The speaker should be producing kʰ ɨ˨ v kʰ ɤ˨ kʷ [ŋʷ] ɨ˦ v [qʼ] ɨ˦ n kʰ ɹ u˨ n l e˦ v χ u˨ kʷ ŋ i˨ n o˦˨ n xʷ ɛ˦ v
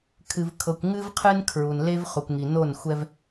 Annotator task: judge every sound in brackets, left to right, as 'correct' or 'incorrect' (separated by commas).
incorrect, incorrect